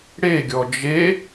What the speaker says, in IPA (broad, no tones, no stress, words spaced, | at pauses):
ɽeɡʲɔ d͡ʒe